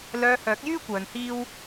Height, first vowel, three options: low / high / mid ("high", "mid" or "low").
mid